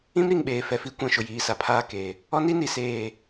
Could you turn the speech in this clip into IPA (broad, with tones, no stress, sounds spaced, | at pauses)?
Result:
ĩ˦ m ɾ i˨ ŋ ɓ eː˨ f ɛ˨ f i˦ kʷ ã˨ ʃ ʊ˨ j iː˨ s a˨ pʰ aː˦˨ k eː˨ | ɔ˦ n i˦ n i˨ s eː˦˨